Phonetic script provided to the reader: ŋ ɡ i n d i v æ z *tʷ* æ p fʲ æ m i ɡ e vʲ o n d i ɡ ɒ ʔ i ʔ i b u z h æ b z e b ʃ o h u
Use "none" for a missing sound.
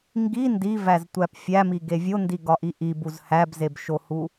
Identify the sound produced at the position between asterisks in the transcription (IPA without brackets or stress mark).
tʷ